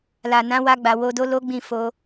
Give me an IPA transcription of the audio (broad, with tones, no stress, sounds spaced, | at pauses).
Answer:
l a˨ n ã˨˦ w a˧ ɡ͡b a˨ w o˧ d o˦ l o˦ ɡ͡b ĩ˦˨ f o˧